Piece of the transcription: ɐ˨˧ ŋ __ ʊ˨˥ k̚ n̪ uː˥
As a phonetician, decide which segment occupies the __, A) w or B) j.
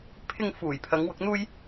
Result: A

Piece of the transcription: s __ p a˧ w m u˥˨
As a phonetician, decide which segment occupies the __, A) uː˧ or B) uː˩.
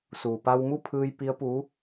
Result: B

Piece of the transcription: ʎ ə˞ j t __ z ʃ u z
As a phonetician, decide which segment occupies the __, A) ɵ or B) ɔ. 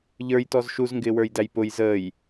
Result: B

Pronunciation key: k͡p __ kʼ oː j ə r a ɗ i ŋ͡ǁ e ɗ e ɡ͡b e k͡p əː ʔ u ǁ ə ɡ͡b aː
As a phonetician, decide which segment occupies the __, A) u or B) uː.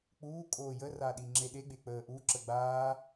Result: B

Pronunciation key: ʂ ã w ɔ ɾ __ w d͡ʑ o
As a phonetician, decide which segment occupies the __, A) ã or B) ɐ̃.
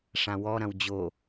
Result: B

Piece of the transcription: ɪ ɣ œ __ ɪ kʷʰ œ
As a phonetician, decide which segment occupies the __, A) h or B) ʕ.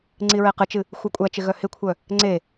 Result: A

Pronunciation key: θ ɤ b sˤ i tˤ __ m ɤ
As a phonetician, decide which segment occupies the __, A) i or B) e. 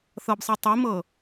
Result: A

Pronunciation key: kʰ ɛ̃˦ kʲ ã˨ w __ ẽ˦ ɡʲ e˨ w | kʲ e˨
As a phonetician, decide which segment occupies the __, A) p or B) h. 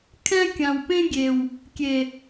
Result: A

